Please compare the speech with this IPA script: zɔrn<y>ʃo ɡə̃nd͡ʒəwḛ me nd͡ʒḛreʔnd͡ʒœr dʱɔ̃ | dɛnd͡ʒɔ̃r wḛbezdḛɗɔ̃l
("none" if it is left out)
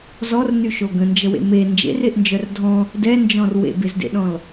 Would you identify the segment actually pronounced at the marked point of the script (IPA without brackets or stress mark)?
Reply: y